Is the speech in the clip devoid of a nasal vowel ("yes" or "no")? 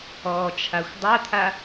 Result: yes